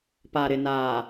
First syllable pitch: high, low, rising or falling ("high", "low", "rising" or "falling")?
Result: low